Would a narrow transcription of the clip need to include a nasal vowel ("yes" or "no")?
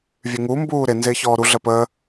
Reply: no